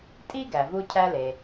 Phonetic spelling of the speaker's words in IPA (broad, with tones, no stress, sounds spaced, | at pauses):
tʼ i˥ ɡ æ˩ v u˧ cʰ æ˧ l e˩